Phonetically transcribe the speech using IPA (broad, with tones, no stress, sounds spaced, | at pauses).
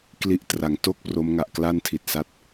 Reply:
k l i˥˩ ʔ t r a˨˩ ŋ t o˥˩ k̚ p r o˦˥ m ŋ a˨˩ ʔ k l a˥˩ n tʰ i˨˩ t̚ s a˦˥ t̚